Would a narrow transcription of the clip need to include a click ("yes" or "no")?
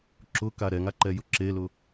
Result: yes